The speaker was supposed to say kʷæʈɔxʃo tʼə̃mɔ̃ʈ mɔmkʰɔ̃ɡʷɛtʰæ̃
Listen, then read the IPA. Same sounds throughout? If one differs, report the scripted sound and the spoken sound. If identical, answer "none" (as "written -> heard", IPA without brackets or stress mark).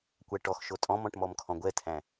ə̃ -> ɔ̃